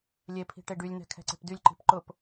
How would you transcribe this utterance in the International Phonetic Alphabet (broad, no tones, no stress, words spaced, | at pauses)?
lʲepʰi̤ ʈeɖylʲnɛ̤ kʰɛ̤ǀe̤pdylʲǃi̤p ǃʊp